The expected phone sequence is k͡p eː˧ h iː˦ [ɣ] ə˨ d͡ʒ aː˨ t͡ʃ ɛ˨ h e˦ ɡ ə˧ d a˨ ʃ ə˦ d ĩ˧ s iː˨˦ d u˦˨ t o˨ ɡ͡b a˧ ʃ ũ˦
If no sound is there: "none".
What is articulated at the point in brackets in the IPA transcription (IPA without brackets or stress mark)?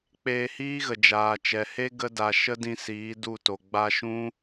ɣ